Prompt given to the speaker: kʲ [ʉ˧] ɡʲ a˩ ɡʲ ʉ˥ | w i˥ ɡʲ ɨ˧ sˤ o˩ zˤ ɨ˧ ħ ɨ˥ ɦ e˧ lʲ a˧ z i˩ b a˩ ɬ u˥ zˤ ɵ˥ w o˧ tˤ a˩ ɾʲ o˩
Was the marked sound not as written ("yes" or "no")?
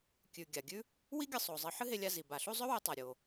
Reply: yes